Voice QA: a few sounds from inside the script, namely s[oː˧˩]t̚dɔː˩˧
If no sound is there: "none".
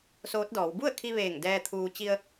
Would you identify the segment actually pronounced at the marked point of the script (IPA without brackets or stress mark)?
oː˧˥